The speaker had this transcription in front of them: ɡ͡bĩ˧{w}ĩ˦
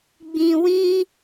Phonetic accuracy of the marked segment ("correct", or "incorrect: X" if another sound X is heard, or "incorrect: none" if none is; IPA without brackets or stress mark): correct